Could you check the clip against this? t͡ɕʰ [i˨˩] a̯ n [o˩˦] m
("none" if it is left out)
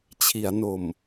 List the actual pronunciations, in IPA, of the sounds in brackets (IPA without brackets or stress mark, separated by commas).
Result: i˩˦, o˨˩